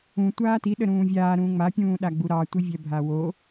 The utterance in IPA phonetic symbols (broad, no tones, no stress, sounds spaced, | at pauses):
ũ tʷ aː t i ɗ ə ɾ ũː vʲ aː ɾ ũː ŋ͡m a pʲ ũː ɗ a ɡ͡b u ɾ ɑ tʷ i vʲ ɛ bʱ a w o